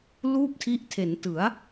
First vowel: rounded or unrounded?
rounded